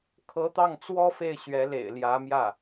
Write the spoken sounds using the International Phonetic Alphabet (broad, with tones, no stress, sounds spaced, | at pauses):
kʰ ɤ˧˥ t̪ ɑ˥˩ ŋ t͡s w ɔ˥ f e˥˩ ɪ̯ ɕ ɥ ɛ˧˥ l ḛ˨˩ ɪ̯ l j ä˧˥ m j ä˥˩